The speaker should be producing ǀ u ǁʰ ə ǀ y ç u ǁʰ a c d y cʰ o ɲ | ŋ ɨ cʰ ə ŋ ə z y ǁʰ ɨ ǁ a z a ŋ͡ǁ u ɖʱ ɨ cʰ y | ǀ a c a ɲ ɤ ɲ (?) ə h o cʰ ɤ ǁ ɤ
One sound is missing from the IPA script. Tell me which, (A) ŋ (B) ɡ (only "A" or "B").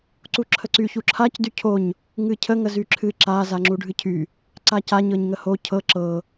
A